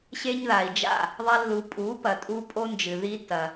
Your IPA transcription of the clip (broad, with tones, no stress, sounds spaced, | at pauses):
ɕ e˧ ɲ ð a˨ i̯ d͡ʒ a̰˦˨ | ðˤ a˧ lː u˨ pʼ u˨˦ p ɐ˨ tʼ u˧ pʼ o˦ n d͡ʒ ɨ˨ ð i˦ t ɐ˧